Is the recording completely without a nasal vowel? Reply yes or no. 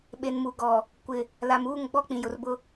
no